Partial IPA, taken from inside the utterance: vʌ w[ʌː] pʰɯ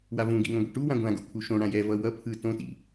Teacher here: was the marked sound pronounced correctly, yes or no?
no